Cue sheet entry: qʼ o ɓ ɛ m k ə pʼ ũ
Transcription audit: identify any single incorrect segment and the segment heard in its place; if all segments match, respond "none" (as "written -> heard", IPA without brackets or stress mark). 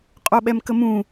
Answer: pʼ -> m